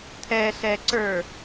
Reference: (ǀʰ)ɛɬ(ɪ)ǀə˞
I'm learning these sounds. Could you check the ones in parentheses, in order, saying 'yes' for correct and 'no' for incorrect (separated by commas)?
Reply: no, no